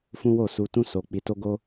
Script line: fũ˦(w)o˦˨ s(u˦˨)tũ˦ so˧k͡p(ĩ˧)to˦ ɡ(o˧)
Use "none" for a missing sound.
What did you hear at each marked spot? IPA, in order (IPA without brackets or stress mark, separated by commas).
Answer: w, u˧, i˧, o˦